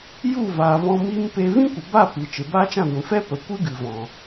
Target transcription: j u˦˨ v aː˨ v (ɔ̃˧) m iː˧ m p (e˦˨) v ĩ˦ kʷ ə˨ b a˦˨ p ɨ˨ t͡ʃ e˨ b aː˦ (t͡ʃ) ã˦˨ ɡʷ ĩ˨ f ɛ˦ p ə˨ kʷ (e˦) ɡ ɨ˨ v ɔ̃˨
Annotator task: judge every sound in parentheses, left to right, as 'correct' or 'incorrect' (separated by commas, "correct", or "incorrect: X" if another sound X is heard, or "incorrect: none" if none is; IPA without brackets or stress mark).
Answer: correct, incorrect: e˧, correct, incorrect: ɨ˦